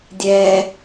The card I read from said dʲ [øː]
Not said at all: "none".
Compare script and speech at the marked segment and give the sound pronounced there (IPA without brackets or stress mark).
ɛː